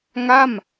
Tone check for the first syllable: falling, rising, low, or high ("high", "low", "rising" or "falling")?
falling